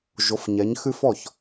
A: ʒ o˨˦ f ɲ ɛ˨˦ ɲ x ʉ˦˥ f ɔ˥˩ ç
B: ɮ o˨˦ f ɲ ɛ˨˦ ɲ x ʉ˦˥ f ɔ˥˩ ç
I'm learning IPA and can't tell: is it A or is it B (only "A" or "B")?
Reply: A